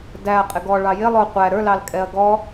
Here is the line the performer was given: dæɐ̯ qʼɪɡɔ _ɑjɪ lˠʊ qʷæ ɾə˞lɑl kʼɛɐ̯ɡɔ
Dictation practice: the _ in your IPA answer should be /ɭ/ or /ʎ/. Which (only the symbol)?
ɭ